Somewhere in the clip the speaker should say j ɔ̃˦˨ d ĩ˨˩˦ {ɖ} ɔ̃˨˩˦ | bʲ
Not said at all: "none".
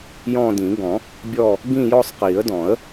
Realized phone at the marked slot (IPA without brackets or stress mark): ɡ